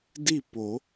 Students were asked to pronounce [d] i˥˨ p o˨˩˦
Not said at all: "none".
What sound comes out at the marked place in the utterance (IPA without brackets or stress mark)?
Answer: d